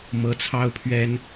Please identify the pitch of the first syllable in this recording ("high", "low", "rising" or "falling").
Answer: rising